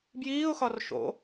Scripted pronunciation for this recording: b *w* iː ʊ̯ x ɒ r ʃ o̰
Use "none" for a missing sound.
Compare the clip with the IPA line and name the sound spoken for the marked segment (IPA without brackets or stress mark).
j